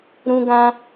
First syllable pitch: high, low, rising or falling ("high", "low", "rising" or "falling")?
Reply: high